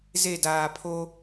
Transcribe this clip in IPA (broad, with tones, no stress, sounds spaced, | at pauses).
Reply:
z e˦˨ d aː˨ pʰ o˦